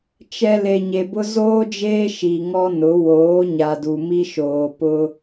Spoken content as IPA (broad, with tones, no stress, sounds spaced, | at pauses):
t͡ʃ ɛ˨ l e˨ ɲ e˨ b ʊ˦ z oː˦ d͡ʒ eː˦ ʃ i˨ ŋ ɔ˦ n ʊ˨˦ w oː˨˦ ɲ a˨ d u˨ m i˦ ʃ oː˨ p ʊ˦